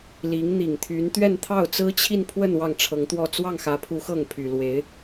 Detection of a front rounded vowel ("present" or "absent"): present